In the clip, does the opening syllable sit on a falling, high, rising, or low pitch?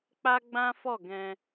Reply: high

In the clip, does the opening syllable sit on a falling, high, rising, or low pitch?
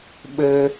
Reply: high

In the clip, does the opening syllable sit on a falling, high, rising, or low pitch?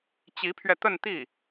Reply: rising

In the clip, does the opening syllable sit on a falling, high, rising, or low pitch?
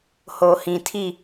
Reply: low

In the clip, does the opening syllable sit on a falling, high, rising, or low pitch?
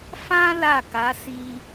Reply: high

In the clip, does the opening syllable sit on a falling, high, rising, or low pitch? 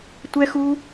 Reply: high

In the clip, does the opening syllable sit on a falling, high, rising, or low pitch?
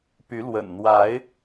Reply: rising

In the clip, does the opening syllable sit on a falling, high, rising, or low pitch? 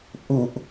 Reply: low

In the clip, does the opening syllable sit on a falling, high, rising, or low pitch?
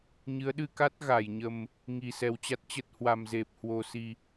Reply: rising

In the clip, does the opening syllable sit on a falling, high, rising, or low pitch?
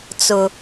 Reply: low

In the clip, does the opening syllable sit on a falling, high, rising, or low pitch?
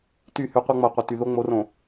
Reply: falling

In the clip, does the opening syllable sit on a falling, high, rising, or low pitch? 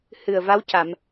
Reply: low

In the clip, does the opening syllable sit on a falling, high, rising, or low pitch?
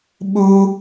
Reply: high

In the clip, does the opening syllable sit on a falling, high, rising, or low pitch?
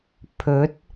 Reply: rising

